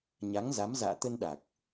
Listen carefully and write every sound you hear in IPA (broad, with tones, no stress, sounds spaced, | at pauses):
ɲ a˨˦ ŋ z a˨˦ m z a̰ː˧˨ t̪ ə˧ n ɗ a˨˩ k̚